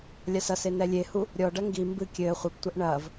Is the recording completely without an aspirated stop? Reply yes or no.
yes